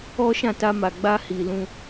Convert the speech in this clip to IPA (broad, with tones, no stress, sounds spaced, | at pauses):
ɔ˦ ʃ ã˦˨ t a˧ m a˨ ɡ͡b a˧ h i˨ l ũ˧